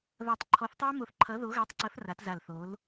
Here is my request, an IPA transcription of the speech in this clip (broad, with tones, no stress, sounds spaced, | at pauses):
ð ʌː˧˩ tˤ ǃʰ ɔ˨˥ θ tˤ o˦˥ ɐ̯ m o˧˩ θ ǃʰ ʌː˨˥ ð o˨˥ ɣ ʌː˨˥ tˤ ǀ ʌː˨˥ θ r a˨˥ t z a˧˩ l θ oː˨˥ l